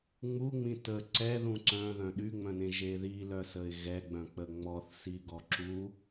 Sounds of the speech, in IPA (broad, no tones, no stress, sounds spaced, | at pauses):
ŋ͡m u ŋ͡m ĩ t ə ǀ ɛ ð ũ ǀ œ̃ ð œ̃ ɗ y ŋ͡m œ̃ n ẽ ʒ e ð i l œ s ə ɪ̯ ɣ ɛ ɡ͡b œ̃ k͡p ə ŋ͡m ɔ θ s i ɡ ɔ ǁ u